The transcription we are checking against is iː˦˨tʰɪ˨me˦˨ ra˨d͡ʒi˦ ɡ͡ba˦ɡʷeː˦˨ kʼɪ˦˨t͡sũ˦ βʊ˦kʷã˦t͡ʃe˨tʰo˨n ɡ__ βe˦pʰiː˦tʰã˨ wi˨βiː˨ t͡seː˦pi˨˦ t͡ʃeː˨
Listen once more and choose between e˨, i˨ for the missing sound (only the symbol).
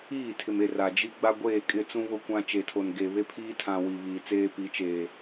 e˨